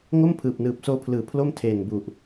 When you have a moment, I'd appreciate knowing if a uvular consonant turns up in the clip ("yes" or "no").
no